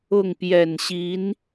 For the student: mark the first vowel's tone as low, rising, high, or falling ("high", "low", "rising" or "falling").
falling